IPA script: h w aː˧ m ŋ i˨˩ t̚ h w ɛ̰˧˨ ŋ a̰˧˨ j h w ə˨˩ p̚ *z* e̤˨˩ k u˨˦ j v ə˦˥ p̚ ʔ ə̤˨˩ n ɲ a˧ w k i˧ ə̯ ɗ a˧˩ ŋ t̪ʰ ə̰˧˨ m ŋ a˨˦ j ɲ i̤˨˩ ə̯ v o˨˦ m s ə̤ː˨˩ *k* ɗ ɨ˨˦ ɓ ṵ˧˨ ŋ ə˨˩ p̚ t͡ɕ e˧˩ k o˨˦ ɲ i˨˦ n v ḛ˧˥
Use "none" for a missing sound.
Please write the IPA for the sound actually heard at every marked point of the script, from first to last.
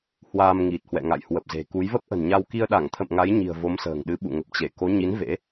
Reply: z, ŋ

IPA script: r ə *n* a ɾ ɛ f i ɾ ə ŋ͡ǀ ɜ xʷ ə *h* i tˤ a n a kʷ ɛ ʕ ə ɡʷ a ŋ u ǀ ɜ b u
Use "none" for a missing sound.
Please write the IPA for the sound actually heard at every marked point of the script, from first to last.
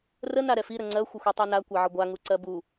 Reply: n, xʷ

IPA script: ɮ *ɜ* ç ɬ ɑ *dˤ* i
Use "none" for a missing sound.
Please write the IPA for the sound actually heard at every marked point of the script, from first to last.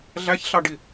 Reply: æ, ɖ

